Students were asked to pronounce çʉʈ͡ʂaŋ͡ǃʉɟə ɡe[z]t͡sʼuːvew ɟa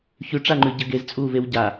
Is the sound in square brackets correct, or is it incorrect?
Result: correct